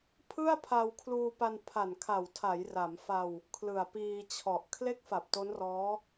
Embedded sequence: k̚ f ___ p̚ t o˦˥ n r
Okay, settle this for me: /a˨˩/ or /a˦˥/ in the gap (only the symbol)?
a˨˩